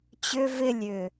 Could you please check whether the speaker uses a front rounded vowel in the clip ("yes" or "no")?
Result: yes